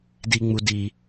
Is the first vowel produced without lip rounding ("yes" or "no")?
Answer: yes